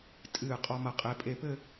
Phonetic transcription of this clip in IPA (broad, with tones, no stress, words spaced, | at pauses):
tʼɨː˧˩qʼɔ˧mɐ˧˩ qʼe˩˧pʼe˧˩pɘ˥˧